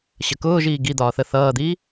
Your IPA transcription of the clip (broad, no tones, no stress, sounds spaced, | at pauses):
ɕ ə k ʊː ʒ iː ɡ i d̪ ɒː θ ə θ ʌː d̪ iː